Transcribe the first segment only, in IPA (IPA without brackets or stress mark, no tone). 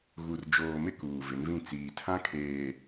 ɣ